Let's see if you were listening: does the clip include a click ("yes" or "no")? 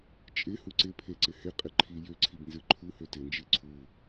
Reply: yes